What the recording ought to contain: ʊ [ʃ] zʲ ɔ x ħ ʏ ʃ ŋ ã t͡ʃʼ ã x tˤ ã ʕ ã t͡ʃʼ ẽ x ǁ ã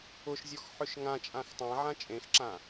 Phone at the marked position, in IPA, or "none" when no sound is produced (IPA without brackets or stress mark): ʃ